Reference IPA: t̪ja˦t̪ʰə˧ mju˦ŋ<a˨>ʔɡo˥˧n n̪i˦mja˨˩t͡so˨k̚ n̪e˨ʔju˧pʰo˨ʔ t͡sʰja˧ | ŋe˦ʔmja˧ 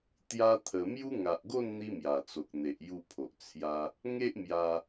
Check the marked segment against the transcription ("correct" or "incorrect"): correct